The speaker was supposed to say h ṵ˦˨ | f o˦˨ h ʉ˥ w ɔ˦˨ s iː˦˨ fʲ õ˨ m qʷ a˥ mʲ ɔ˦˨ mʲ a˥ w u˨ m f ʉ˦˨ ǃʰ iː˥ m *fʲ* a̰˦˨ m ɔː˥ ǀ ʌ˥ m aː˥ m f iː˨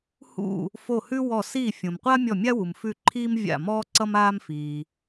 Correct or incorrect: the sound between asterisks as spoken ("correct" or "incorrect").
incorrect